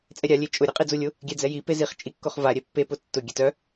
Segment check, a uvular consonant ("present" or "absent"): present